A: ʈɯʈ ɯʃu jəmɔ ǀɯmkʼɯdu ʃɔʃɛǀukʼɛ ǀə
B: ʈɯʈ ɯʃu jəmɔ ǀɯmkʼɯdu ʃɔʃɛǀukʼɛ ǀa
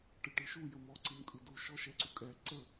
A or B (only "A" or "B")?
A